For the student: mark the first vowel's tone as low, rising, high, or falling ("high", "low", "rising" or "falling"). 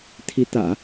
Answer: rising